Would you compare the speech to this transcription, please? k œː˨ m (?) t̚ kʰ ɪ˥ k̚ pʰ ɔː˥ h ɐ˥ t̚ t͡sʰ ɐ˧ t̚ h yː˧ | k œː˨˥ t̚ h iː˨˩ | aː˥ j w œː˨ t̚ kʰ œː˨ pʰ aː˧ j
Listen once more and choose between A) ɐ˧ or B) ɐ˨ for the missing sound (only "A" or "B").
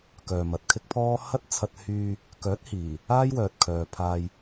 B